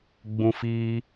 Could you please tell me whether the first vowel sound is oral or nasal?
nasal